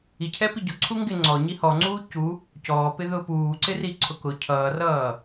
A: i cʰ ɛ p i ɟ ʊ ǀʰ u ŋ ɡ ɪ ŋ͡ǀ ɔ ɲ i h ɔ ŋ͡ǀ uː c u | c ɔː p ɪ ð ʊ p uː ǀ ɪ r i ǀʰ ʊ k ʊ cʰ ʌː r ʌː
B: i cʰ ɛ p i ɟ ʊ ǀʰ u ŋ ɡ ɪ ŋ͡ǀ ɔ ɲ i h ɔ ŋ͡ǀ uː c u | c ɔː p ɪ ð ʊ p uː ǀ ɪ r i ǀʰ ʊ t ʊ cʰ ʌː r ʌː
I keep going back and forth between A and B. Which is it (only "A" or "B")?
A